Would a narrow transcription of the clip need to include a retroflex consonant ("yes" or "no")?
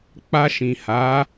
no